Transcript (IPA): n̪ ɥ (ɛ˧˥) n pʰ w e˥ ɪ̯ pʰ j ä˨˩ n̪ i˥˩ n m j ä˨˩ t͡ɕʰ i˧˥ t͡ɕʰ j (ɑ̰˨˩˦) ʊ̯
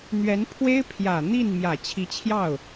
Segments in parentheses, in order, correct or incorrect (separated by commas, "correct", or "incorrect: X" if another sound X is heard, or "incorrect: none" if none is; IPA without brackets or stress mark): correct, incorrect: ɑ˥˩